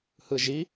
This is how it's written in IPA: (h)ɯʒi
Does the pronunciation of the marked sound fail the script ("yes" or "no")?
no